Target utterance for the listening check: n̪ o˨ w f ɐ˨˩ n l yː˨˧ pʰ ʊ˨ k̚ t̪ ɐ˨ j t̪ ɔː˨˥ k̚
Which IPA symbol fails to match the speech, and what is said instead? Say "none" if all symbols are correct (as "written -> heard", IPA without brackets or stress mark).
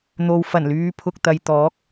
none